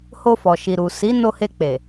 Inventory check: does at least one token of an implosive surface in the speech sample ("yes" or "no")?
no